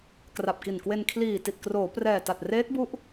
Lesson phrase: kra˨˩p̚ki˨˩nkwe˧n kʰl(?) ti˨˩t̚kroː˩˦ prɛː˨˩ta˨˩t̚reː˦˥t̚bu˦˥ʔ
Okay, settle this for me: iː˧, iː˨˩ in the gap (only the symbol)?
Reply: iː˨˩